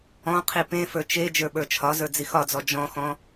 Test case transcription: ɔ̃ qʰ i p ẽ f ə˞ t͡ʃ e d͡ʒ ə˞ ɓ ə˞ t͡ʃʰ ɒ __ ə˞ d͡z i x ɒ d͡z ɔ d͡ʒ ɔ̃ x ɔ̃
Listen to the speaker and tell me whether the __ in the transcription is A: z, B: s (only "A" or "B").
A